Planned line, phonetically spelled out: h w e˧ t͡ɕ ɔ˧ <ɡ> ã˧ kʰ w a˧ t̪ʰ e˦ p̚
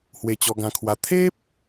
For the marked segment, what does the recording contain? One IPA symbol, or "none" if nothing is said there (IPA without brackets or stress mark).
ɡ